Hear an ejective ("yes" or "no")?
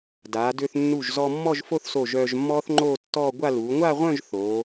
no